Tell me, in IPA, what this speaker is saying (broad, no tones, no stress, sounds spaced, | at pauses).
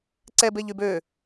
ǀ ɛ b e ʎ y b ø